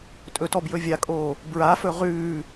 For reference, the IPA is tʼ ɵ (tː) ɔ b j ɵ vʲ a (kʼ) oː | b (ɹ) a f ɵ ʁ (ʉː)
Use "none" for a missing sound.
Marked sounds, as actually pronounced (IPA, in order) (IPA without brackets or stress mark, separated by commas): t, kʼ, ɹ, ʉː